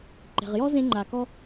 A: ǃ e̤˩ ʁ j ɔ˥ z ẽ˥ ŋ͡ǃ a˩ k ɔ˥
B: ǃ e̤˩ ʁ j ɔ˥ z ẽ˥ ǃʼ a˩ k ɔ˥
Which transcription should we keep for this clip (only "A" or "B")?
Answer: A